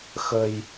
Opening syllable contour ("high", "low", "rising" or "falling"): low